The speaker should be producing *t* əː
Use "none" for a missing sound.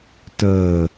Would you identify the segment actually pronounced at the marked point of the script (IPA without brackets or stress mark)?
t